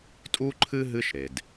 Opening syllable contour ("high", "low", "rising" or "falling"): high